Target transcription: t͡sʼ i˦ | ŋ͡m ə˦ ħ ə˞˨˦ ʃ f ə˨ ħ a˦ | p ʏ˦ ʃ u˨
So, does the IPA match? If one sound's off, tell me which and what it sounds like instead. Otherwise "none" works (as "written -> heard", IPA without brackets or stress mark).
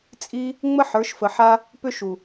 none